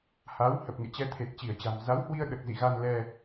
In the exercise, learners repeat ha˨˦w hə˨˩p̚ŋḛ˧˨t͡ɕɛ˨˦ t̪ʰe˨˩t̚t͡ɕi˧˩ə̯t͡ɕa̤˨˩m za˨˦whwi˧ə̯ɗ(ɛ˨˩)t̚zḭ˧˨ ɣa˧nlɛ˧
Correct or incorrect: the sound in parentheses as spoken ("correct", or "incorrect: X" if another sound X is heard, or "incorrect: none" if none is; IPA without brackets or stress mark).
incorrect: ə˨˩